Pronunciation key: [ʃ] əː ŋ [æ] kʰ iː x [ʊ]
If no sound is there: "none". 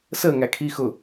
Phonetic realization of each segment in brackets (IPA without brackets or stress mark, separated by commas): s, æ, ʊ